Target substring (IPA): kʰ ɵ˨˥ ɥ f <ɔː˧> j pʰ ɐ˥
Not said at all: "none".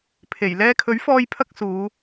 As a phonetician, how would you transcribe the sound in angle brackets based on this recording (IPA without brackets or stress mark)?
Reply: ɔː˧